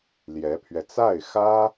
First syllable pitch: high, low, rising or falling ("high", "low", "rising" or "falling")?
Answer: rising